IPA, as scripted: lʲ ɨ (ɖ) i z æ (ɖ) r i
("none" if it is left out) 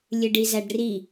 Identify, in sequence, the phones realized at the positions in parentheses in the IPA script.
ɖ, ɖ

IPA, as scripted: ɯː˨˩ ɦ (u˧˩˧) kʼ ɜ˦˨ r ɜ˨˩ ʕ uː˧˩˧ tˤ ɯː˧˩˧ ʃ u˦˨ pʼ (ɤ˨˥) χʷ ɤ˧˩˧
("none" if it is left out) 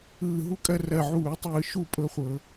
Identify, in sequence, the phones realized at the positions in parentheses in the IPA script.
u˦, ɤ˦

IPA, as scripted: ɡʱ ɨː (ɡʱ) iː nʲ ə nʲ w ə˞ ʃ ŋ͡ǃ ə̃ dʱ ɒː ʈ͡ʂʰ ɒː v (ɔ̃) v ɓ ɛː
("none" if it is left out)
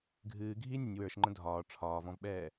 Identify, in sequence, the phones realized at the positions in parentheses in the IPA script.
ɡʱ, ɔ̃

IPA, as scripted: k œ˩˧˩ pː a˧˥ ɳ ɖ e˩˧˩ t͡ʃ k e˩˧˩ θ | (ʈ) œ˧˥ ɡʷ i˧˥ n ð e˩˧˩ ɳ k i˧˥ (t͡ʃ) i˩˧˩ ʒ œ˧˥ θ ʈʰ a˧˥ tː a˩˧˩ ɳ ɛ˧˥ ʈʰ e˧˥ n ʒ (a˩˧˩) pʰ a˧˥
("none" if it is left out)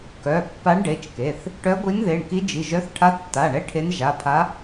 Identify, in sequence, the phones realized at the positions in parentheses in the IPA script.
ʈ, d͡ʒ, a˩˧˩

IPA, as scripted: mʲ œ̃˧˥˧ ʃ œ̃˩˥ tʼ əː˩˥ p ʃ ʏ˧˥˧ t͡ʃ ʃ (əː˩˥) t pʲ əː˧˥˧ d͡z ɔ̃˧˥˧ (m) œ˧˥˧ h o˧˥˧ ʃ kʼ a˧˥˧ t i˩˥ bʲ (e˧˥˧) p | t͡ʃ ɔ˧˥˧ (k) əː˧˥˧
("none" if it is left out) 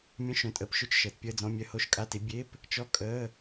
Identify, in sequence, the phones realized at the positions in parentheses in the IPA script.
əː˩˥, mʲ, e˧˥˧, kʼ

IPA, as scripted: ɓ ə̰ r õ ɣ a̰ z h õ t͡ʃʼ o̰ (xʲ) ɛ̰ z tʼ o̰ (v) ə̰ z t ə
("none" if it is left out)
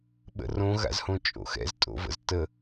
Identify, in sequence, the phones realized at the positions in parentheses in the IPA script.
x, v

